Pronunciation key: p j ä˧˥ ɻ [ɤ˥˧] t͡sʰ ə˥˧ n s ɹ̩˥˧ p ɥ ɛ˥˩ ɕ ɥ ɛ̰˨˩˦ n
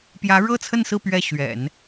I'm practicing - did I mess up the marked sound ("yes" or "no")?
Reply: no